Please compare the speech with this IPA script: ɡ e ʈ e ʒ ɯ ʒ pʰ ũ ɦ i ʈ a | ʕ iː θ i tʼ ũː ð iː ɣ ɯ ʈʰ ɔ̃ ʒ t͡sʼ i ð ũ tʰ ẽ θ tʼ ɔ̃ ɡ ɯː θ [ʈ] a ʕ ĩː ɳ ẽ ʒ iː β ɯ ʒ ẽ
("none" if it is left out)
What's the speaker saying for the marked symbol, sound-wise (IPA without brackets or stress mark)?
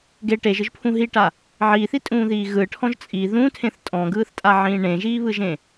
tʼ